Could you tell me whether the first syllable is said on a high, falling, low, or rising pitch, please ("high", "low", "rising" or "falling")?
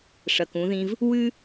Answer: low